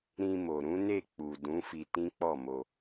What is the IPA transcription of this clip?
ɾ ĩ˧ m o˨ ɾ ũ˨˦ n e˦˨ k͡p u˨ d ũ˨˦ f i˧ t ĩ˦ k͡p ɔ˦˨ m o˧

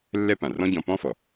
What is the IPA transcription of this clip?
lː ɛ˥ p ã˩ r ɔ̃˥ ɟ ɔ̃˧ p ɔ̃˥ f ɔ˩

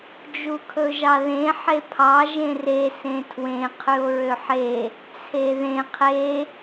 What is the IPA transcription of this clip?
d͡ʒ u kʰ ɵ ʒ ɑ ð ẽ ħ e pʰ ɑ ʒ ẽ r e s ẽ tʰ w ẽ qʰ ʉ o̯ ɹ ø ħ e | t͡sʰ e ð ẽ qʰ e

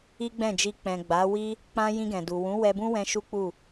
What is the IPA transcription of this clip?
i˦ ɡ͡b ɛ̃˦˨ d͡ʒ i˧ k͡p ɛ̃˨ ɡ͡b a˨˦ w i˦ | k͡p ã˧ j ĩ˧ ɡ ɛ̃˨ d u˨ w ũ˨˦ w ɛ˧ b ũ˦ w ɛ̃˧ ʃ u˦ k͡p u˦˨

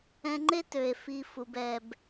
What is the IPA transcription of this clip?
ɛ̃˧ ŋ͡ǃ e˦ t ø˨ e̯ f i˧ f u˧ b ɛ˧ b

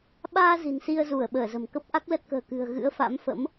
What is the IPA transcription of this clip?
ɓ aː˧ z i̤˨˩ n s i˧ ə̯ z u˧˩ ə̯ ɓ əː˧˩ z ə̤˨˩ m k ə˦˥ p̚ ʔ a˦˥ k̚ l ə˦˥ t̚ k ə̤ː˨˩ k ɨ̤˨˩ ə̯ ɣ ɨ̰˧˥ ə̯ f a̰˧˥ m f ə̰˧˥ m

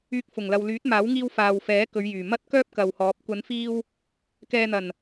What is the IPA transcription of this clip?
yː˧ k̚ f ʊ˨˩ ŋ l ɐ˨ w l yː˨˥ t̚ m aː˨˥ w ŋ iː˧ w f aː˨ w f ɛː˨˥ k ɵ˨˧ ɥ j yː˨˩ m ɐ˥ t̚ k œː˥ p̚ k ɐ˨ w h ɔː˨˥ p̚ kʷ ɐ˨˧ n f iː˧ w | k ɛː˨ n̪ ɐ˨˩ n

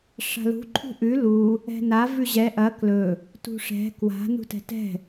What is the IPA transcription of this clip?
ʂ a̤ l ṳ ǃʰ ṳ ʔ ʉ l u | ɛ̤ n a v ʉ ʑ ɛ ʔ ɐ k l ɵ | t ṳ ʂ ɛ̤ k w a̤ n ṳ t ɛ̤ t ɛ̤

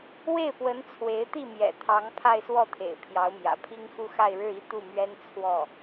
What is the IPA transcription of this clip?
w e˥˩ ɪ̯ p w ə˧˥ n t͡sʰ w e˧˥ ɪ̯ t̪ i˥˩ m j ɛ̰˨˩ t̪ʰ ɑ˧˥ ŋ pʰ a˥˧ ɪ̯ s w ɔ˥˩ t̪ʰ ḛ˨˩ ɪ̯ pʰ j ɑ˧˥ ʊ̯ m j ä̰˨˩ pʰ i˥ ŋ x u˥ x a˥˧ ɪ̯ ɻ ɻ̩˥˧ i˥˧ t̪ u˥˩ m ɥ ɛ˥ n t͡sʰ w ɔ˥˩

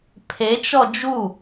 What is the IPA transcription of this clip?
pʰ e t͡ʃ ɔ d͡ʒ u

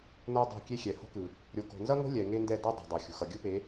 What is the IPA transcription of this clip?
n o˦ dˤ o̤˦˨ kʲ e˦ xʲ ɛ˨ h o̤˦ k ɯ˨ | ɾʲ o˨ k o̤˨ n z ʌ˦ ŋ o̤˦ lʲ ɛ˨ ŋ e˦ n d ɛ˦˨ d ʌ˦ dˤ e̤˨ dˤ o˨ xʲ ṳ˨ x ʌ˨ ɡʲ ɯ˦ p e˨˦

